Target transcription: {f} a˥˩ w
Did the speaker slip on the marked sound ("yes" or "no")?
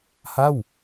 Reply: yes